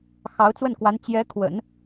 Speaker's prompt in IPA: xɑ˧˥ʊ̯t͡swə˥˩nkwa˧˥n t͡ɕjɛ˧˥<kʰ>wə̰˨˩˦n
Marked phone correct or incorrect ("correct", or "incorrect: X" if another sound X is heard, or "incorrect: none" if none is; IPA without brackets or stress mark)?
correct